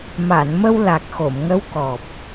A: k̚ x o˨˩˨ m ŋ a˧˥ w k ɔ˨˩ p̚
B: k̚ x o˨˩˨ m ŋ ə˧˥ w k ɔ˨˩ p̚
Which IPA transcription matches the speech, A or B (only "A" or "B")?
B